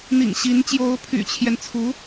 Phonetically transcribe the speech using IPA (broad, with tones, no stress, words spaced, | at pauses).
n̪ḭ˨˩ŋɕi˧˥n t͡ɕjo˧˥ʊ̯pʰy̰˨˩t͡ɕʰjɛ˦nt͡sʰu˧˥